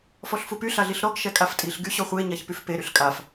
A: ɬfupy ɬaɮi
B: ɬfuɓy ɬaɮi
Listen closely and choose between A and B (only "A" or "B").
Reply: A